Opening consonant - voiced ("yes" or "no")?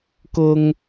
no